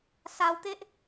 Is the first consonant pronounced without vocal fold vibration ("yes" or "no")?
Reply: yes